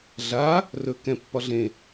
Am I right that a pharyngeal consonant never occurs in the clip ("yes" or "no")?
yes